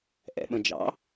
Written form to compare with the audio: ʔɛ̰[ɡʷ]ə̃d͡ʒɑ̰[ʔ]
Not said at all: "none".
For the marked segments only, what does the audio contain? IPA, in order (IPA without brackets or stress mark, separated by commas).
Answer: ɓ, none